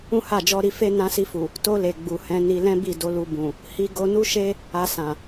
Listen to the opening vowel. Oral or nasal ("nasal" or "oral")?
nasal